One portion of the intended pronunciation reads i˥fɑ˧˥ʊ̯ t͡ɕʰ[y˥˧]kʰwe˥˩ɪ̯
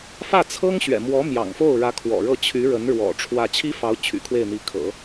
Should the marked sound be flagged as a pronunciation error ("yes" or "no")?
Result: yes